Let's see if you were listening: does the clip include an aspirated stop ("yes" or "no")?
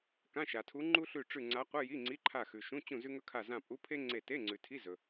yes